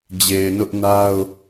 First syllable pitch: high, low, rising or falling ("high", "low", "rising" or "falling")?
low